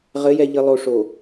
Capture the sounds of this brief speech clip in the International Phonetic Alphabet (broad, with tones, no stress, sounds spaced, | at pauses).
ʁ ɘ˨˦ j ɛ˨ ʎ ɘ˨ lˠ o˨ ʂ o˨